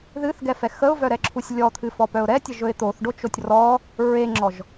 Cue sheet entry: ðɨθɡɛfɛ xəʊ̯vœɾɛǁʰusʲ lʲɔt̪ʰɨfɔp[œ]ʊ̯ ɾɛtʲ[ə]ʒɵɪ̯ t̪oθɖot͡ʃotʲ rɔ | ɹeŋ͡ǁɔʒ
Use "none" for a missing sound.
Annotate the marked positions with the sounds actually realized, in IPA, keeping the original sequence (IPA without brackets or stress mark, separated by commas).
œ, ə